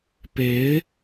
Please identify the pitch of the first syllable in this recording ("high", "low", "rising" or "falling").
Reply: rising